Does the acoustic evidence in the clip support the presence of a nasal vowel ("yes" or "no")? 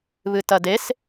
no